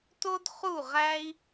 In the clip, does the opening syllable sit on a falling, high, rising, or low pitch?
high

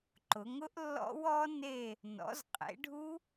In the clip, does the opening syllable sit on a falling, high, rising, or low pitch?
rising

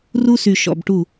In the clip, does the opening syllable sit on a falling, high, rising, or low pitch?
high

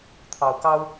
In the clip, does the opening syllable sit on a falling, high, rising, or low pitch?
low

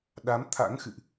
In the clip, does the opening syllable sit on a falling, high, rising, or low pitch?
rising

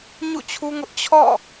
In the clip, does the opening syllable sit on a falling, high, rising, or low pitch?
falling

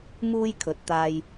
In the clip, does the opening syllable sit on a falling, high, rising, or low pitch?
high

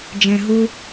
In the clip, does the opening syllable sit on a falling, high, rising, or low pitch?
low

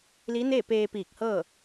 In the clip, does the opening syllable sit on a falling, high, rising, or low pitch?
rising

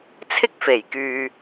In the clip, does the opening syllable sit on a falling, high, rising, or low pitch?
high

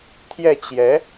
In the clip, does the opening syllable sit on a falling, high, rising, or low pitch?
falling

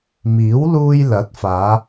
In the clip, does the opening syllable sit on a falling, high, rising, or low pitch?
rising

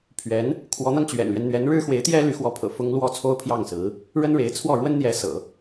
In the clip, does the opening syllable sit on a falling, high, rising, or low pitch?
rising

